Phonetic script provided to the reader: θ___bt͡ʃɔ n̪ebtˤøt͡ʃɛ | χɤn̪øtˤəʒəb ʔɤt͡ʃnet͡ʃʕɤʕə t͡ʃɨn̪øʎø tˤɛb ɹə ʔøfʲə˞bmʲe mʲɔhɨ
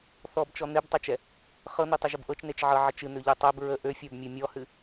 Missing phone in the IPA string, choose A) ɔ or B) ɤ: A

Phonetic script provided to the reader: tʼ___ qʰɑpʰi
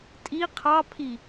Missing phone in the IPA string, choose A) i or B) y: A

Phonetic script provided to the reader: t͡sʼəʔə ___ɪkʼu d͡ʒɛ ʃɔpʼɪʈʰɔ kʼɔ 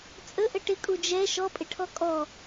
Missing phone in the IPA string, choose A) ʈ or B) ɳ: A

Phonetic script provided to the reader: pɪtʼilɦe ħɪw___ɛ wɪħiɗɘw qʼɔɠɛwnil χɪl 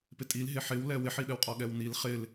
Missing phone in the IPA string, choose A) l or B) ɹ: A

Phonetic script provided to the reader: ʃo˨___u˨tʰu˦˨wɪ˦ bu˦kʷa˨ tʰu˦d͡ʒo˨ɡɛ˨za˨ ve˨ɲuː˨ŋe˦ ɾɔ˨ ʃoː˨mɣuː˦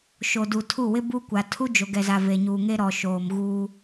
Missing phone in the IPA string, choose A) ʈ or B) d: B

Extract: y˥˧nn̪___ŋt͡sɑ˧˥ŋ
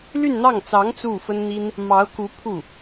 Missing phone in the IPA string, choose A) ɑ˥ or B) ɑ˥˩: B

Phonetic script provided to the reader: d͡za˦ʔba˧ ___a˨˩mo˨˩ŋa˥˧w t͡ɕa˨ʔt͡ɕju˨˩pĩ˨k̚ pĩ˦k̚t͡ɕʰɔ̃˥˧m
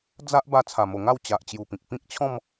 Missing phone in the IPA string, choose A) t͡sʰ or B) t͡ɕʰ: A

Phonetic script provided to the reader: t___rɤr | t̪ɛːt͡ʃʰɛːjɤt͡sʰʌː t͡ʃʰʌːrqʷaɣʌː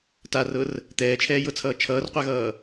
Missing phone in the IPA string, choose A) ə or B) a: B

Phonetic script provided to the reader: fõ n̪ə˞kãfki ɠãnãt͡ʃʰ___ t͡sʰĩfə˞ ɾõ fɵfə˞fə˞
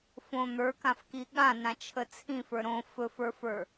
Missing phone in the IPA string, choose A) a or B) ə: B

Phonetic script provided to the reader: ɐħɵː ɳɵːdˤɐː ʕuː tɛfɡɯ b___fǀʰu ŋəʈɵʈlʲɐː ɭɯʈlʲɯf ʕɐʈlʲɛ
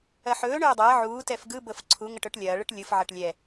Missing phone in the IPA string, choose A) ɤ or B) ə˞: A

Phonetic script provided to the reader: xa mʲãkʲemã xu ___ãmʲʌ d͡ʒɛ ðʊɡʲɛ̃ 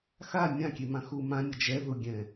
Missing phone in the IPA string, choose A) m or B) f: A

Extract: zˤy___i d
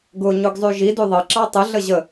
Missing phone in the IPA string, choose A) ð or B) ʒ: B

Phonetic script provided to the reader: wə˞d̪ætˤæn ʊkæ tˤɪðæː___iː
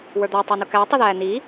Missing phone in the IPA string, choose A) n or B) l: A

